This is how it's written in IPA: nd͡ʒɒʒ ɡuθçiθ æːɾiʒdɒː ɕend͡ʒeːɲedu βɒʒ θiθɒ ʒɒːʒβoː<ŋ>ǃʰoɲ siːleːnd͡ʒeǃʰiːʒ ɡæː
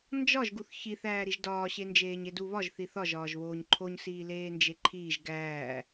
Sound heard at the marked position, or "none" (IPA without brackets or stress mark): ɲ